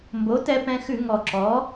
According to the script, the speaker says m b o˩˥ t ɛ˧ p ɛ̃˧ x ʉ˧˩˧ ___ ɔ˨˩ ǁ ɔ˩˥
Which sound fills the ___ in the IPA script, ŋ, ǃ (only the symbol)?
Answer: ŋ